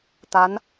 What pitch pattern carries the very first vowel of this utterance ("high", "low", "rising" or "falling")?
rising